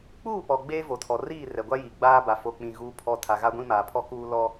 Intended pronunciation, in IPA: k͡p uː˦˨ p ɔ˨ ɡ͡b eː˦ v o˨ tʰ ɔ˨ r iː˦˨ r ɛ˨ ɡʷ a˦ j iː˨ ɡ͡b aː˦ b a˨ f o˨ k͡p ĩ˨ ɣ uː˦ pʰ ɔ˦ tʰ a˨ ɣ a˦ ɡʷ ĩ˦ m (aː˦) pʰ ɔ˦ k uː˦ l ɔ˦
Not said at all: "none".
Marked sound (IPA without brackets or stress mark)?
aː˨